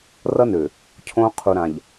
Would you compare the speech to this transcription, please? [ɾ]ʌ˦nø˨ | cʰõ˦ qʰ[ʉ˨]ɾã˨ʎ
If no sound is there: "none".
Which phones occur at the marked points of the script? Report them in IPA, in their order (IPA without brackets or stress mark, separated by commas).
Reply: r, u˨